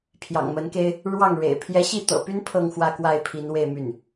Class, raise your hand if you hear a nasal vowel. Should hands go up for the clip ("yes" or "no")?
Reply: no